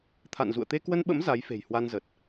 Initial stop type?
aspirated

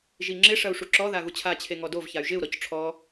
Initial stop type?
click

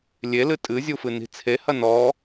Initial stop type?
ejective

